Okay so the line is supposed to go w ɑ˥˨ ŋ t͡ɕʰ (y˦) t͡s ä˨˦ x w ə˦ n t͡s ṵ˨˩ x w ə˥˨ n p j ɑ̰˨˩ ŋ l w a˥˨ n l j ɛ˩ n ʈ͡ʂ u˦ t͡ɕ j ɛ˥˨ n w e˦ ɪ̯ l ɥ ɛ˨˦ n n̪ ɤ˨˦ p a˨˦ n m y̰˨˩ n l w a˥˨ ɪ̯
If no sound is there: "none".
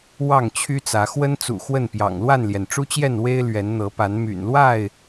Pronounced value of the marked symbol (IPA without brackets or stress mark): y˦